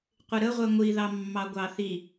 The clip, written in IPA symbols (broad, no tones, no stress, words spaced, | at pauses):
qʷɪɾəʁʷe ŋʷiðɑ mːɑɡʷɑθi